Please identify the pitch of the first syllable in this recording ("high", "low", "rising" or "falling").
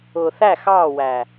low